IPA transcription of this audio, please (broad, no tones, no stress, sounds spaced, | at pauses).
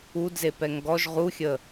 u d z e p ɛ ŋ ɡ ɔ ʒ ʁ u xʲ ə